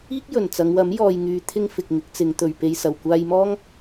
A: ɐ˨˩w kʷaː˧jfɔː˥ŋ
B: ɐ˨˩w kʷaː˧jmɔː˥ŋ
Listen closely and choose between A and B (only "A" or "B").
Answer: B